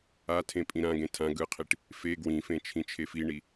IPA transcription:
a tʰ ẽ pʼ ĩ ɾ ã ɡ ẽ tʰ ã ɡ ɯ qʰ i ʈ | f e ɡ w ĩ f ẽ t͡ʃʰ ĩ t͡ʃʰ e f i ɳ i

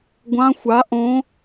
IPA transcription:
ɡʷ ã xʷ a ʔ õ

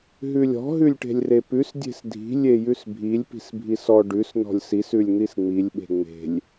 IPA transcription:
ɦ ʉ lʲ ɔ̤ ɦ ʉ lʲ ʈ e̤ lʲ r e p ʉ s dʲ e̤ s dʱ i̤ lʲ e j ʉ s bʱ i lʲ p i̤ s bʱ i s ɔ ɖ ʉ s n ɔ̤ lʲ s i s ʉ lʲ n̪ i s ŋ͡m i lʲ ɓ e̤ ŋ͡m e̤ lʲ

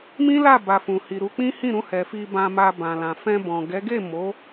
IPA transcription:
m ĩ˦ l a˦˨ b a˨ f ũ˨ h i˨ ɾ u˧ k͡p ĩ˦ h ĩ˦˨ ɾ ũ˧ h ɛ˨ f i˧ b ã˧ m a˧ b ã˨ l ã˨ f ɛ̃˧ b ɔ̃˨ ɡ ɛ˨˦ ɡ e˦˨ m o˨˦

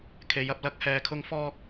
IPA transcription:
kʰ e˨˧ j ɐ˧ p̚ l ɐ˨˥ k̚ h ɛː˨ kʰ ʊ˧ ŋ f ɔː˧ k̚

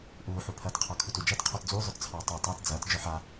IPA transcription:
ʔ uː ħ u pʰ ɐː t qʰ ɑ kʰ u t u d͡ʒ ɐ t qʰ ɔ t d͡z uː zˤ œ t t͡sʰ ɑː tˤ u tˤ ɑ t d͡z ɐː t d͡ʒ œ ħ a

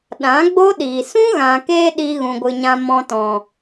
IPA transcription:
ɗ ã˨˦ ɡ͡b o˦ ɗ iː˨ s ũ˦ ɣ ã˨ k eː˧ ɗ i˦ ɣ ũ˧ ɡʷ ɨ˧ ɲ ã˦ m ɔ̃˧ t ɔ̃˨

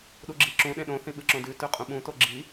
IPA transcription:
ɗ u ɡ͡ǁ i ǁ ũ ɗ ẽ ɗ õ θ ĩ ɓ ɨ ǁ õ d ʉ t ʉ qʼ ũ ɓ ũ t o ɡ͡ǁ i

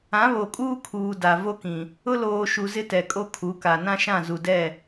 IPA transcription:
ã˨˦ β o˨ kʼ uː˦ kʰ uː˨ d a˨ v o˦ k ĩ˨ | ʊ˦ l oː˨ ʃ u˨ z ɪ˦ t ɛ˨ kʼ o˦ kʰ u˨˦ k a˨ n ã˦ ʃ ã˦˨ z u˨ d ɛ˦˨

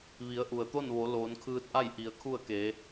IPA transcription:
ʋ i˩˧ ə̯ ʔ u˩ ə̯ t̪ o˥˨ n ʋ o˩˧ l oː˩˧ n kʰ ɯː˧ t̚ ʔ a˥˨ j ʔ i˩˧ ə̯ kʰ u˥˨ ə̯ k e˩˧

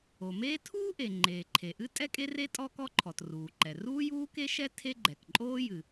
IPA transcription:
o˩ m eː˥ tʰ uː˥ ʔ e˩ ŋ͡ǃ eː˩ ǃʰ e˩ ʔ ɨ˥ tʼ ɛ˥ kʼ e˥ r e˥ tʼ ɔ˥ k ɔ˥ ǃʰ ɔ˩ t r uː˩ ǃ ɛ˩ r uː˥ j uː˥ k e˥ ʃ ɛ˥ tʰ e˥ ɡ͡ǃ ɛ˩ k ǃʼ oː˥ j ɨ˩

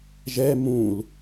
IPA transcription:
ʒ ɛ m ũ l

